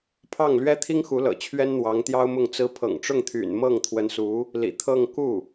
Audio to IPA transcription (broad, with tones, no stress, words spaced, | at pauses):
pʰɑ˥˩ŋ lɥɛ˥t̪ʰi˥ŋxu˧˥lɤ̰˨˩ t͡ɕʰɥɛ˥nn̪wɑ˧˥ŋ t̪jɑ˥ʊ̯mʊ˥˩ŋt͡sɹ̩˥ pʰɤ̰˨˩ŋʈ͡ʂʊ˥˩ŋt̪ʰy̰˨˩n mɤ˥˩ŋt̪ʰwə˧˥nsu˧˥ | lḭ˨˩t̪ʰɤ˥˧ŋ ku˥˩